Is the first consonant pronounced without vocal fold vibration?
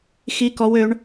yes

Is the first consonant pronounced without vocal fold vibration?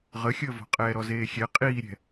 no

